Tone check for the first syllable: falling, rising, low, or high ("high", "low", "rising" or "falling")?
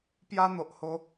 high